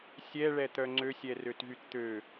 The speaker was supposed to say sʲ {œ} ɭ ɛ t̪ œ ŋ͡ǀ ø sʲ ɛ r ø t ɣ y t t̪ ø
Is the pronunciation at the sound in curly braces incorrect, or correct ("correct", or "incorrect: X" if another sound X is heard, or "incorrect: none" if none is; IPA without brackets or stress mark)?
incorrect: ɛ